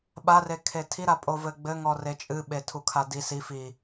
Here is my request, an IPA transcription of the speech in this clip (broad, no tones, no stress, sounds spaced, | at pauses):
ɓ a r e kʰ e tʰ i ɾ a pʼ o v ɘ ɡ͡b ɘ ŋ ɔ r e t͡ʃʼ ɨ ɓ e tʰ u kʰ a d i s i f i